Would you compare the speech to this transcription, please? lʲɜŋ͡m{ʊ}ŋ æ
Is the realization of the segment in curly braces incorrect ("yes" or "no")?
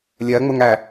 no